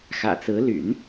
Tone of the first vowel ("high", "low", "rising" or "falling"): low